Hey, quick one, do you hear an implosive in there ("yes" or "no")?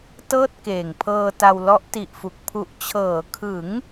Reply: no